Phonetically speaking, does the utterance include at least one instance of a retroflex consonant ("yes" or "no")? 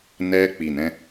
no